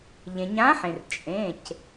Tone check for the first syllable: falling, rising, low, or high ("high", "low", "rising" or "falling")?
low